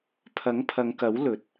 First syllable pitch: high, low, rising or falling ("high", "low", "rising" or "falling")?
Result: rising